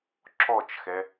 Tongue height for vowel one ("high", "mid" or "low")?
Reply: mid